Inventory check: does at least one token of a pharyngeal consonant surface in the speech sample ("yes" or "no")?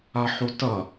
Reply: yes